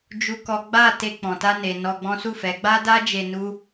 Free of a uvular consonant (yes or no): yes